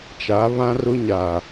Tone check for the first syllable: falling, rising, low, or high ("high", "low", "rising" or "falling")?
rising